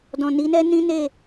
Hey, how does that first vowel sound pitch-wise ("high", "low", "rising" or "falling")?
low